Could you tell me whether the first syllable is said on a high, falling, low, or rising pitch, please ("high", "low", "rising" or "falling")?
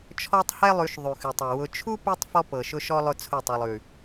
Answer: high